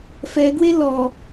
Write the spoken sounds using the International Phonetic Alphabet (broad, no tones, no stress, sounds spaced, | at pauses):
f ɛ ɡ w e l ɔ